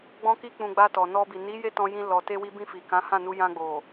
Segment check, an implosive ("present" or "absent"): absent